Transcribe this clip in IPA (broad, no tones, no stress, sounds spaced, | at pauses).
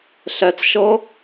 ɬ ɛ t͡s ʃ ɤ